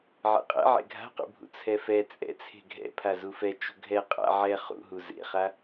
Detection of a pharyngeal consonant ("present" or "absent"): present